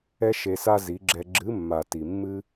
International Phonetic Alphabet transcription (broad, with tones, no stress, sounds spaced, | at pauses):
ɛ˦ ʃ e˧ s a˦ z i˨˦ ɡ͡ǁ ɛ˧ ɡ͡ǁ ɨ˨˦ mː a˨ t i˨ mː ɨ˦